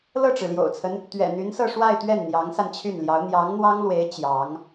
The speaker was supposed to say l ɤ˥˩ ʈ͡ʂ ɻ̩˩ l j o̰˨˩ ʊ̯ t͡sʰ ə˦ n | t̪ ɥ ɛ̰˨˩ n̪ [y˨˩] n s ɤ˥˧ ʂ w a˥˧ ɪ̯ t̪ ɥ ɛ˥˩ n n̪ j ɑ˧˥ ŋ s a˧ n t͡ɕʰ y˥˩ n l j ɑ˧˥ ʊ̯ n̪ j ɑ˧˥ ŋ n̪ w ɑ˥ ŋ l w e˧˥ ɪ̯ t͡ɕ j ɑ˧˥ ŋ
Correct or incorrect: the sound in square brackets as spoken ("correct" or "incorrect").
incorrect